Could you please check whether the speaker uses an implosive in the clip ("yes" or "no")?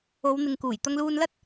no